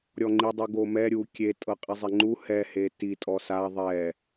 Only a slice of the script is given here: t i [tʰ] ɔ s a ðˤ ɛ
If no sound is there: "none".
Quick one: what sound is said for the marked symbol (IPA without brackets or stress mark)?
tʼ